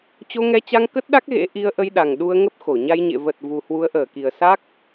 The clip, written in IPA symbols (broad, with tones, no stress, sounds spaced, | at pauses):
t͡ɕ o˧ ŋ ɛ˧ t͡ɕ a˧ ŋ k ə˦˥ t̚ ɗ a˦˥ k̚ ɣ ḛ˧˥ ʔ i˧ ə̯ ʔ ə˧ j ɗ a˨˩ ŋ ɗ u˧ ə̯ ŋ ə˦˥ p̚ x o˧˩ ɲ a˧ j ɲ ḛ˧˨ v ə˨˩ t̚ v u˨˩ h w u˨˦ ə̯ ʔ əː˧˩ k i˨˩ ə̯ s a˦˥ k̚